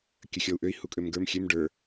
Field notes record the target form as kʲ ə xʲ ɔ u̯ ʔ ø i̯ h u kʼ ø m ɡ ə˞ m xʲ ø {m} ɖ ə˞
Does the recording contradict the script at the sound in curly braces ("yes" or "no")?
no